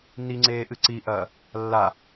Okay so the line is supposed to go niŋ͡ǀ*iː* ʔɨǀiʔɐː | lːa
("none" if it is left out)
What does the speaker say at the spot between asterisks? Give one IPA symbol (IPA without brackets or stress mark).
eː